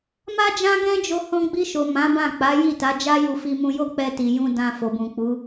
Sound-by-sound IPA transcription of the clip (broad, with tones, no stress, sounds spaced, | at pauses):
m a˦ d͡ʒ ã˦ ɡ ɛ̃˦ d͡ʒ o˧ h ɔ̃˧ ɡ͡b i˧ ʃ o˨ m ã˨˦ b ã˦˨ k͡p a˨˦ j i˦˨ t a˨˦ d͡ʒ a˦ j u˧ f i˧ m ũ˧ j o˦ k͡p ɛ˧ t i˨ j ũ˧ d ã˧ f o˨ b ũ˨ k͡p u˨˦